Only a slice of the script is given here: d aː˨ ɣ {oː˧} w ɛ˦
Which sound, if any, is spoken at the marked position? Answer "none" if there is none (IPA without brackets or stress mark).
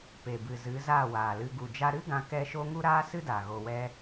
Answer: o˧